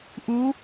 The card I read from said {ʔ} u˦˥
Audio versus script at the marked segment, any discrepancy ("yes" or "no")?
no